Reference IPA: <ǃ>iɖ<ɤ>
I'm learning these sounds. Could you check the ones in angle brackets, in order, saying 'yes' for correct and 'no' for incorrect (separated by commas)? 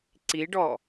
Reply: no, no